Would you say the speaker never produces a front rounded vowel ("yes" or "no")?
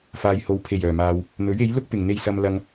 no